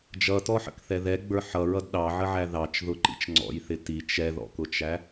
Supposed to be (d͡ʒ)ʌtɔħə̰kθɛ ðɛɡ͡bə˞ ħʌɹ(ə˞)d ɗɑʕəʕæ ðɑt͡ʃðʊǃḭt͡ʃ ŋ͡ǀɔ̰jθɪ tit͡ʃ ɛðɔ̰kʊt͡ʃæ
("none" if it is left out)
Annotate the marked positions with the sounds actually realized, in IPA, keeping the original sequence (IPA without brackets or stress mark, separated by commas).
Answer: d͡ʒ, ʌ